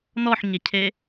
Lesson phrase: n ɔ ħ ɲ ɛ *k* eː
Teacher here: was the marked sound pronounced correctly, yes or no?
no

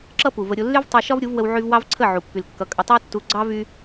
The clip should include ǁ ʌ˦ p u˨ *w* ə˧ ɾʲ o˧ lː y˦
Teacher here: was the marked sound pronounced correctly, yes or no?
no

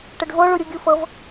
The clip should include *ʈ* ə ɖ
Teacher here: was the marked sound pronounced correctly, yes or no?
yes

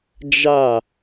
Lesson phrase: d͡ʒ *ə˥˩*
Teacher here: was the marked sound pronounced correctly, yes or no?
no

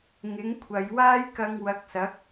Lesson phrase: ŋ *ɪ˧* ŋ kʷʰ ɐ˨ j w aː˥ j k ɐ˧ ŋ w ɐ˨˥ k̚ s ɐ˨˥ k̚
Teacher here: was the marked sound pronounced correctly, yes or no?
no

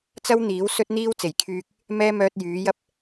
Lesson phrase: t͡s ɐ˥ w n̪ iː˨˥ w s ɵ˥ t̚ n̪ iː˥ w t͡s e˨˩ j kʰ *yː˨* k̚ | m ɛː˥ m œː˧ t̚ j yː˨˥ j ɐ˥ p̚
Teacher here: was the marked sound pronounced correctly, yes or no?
no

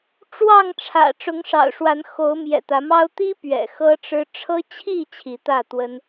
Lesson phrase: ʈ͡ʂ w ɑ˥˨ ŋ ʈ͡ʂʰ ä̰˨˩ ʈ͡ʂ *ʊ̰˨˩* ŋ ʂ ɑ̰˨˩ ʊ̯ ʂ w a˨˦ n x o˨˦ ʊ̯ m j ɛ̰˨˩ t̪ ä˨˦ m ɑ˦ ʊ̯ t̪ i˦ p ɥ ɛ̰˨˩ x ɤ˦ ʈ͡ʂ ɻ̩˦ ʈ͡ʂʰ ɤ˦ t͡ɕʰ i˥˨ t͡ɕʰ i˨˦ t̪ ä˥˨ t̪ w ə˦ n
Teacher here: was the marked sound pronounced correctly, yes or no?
no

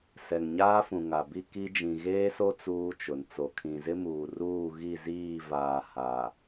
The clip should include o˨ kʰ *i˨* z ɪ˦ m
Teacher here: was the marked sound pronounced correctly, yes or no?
no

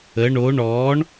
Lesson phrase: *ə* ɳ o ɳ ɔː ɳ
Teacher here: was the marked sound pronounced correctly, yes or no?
yes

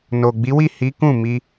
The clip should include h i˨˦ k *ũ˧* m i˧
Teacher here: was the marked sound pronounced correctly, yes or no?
no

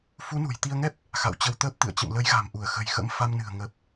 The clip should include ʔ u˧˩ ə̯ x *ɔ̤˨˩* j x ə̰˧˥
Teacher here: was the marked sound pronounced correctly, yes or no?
no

